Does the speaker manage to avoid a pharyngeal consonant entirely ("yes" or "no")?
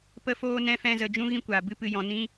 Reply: yes